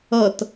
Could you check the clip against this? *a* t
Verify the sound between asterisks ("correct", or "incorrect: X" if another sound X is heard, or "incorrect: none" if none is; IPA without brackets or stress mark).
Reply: incorrect: ʌ